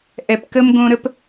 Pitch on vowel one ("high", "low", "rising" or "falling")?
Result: low